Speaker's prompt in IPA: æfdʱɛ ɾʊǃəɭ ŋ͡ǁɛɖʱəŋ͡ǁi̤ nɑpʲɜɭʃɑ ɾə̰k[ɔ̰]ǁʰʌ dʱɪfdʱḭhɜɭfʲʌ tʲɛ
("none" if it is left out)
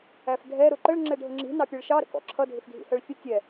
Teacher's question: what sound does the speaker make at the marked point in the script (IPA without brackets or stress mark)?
ɔ̰